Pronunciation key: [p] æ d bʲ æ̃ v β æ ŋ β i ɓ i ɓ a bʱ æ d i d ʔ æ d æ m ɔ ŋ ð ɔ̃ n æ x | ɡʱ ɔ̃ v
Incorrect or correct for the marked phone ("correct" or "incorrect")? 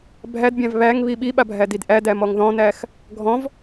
incorrect